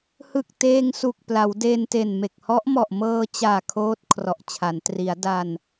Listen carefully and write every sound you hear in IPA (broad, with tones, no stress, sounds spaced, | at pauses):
h ɯ˨˩ k̚ t eː˧ ŋ s u˨˩ k̚ p l a˩˦ w d e˧ n t e˨˩ n m e˨˩ k̚ h ɔ˦˥ ʔ m ɔ˨˩ ʔ m ɤː˧ t͡ɕ aː˨˩ kʰ oː˦˥ t̚ kʰ r ɔ˨˩ ʔ t͡ɕʰ a˩˦ n t r i˩˦ a̯ d a˧ n